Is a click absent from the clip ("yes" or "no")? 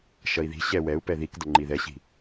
no